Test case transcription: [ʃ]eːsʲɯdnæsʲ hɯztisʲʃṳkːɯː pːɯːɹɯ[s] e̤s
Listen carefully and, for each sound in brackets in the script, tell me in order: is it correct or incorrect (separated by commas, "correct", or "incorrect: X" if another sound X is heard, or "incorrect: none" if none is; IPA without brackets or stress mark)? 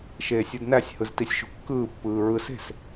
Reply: correct, correct